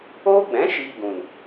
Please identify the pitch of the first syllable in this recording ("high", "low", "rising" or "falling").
high